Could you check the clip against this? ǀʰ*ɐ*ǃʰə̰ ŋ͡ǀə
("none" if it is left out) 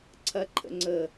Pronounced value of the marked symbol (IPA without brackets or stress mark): ɐ